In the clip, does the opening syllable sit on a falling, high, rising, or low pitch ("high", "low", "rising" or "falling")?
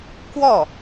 falling